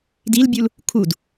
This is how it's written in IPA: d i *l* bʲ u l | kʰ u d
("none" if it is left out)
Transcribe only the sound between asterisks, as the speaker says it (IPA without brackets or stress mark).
l